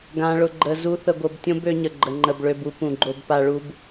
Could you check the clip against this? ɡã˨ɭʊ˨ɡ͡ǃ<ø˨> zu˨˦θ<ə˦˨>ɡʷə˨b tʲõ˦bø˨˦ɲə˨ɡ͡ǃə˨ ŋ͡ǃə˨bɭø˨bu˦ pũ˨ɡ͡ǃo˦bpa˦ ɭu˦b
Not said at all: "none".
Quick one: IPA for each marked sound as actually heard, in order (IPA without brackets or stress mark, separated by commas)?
ə˨, ə˨